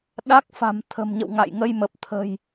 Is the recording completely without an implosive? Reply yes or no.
no